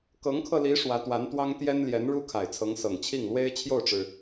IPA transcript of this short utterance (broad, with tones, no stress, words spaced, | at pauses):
kɤ˧˥ŋkʰɤ˧li˧˥ ʂwä˧˥t̪wa˧˥nt̪wɑ˥ŋ t̪jɛ˥n ljɛ˧˥nɻu˥kʰa˨˩ɪ̯ t͡sʰɤ˧˥ŋsɤ˨˩ŋt͡ɕʰi˥˩ŋ lwe˥ɪ̯t͡ɕʰjo˥˩ʊ̯ʈ͡ʂɻ̩˩